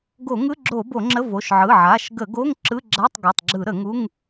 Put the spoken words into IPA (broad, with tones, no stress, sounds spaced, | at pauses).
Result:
ɡ o˧˩˧ ŋ ɯ˧˥˧ ɡ͡ǁ o˧˩˧ b o˧˩˧ ŋ͡ǁ ə˧˥˧ v o˩˧˩ ʃ ʕ ɯ˩˧˩ ʕ a˩˧˩ ʃ ɡ ə˧˩˧ ɡ o˧˥˧ ŋ ǁ ɯ˧˥˧ ɡ͡ǁ a˧˥˧ tˤ ɡ o˩˧˩ tˤ ɡ͡ǁ ɯ˧˩˧ ɾ ə˧˩˧ ŋ u˧˥˧ ŋ